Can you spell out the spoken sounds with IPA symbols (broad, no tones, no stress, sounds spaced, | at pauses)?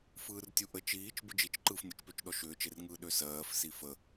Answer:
f ɯː r tʲ u ʔ ə t͡ʃ iː t͡ʃ b ɯ d͡ʒ i t͡ʃ ǃ ɯː f nʲ ə t͡ʃ p ø t͡ʃ ɗ ɔ ʃ ʏː t͡ʃ e r ŋ ɯː ɗ ø s ɜː f s i f ə